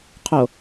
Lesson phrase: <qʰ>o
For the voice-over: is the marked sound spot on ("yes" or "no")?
yes